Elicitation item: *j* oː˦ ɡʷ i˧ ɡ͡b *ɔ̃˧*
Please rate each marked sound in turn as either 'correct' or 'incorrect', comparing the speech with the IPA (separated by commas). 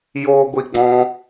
correct, correct